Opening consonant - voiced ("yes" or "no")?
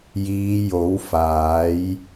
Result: yes